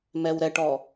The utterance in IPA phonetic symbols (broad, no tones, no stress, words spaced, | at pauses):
mɛwɾɛʈɔ